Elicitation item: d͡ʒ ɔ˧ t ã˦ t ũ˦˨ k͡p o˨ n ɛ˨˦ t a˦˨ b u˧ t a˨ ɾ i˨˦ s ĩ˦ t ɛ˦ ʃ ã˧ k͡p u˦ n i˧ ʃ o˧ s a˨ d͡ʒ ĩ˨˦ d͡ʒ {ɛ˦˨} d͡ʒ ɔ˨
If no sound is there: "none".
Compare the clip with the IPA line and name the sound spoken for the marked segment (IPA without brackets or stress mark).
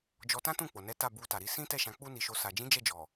ɛ˦˨